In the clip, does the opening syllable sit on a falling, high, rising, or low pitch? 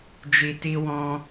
low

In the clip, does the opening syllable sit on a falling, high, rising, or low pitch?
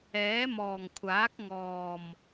rising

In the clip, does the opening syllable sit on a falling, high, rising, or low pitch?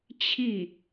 falling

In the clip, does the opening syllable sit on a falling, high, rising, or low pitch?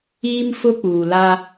high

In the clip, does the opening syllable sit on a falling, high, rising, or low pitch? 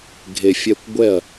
low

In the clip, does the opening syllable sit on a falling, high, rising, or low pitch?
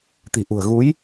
low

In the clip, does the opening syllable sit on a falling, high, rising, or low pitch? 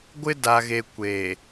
high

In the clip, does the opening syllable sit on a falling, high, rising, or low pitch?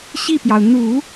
falling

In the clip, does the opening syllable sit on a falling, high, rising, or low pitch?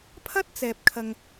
high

